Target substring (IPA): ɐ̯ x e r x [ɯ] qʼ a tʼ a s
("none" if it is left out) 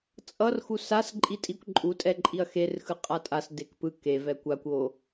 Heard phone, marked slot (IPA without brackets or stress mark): ɯ